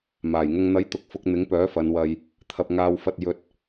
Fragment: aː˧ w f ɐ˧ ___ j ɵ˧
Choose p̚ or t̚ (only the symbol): t̚